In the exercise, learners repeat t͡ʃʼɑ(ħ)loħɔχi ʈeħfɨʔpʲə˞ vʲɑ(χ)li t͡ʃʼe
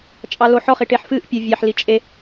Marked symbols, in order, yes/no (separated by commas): no, no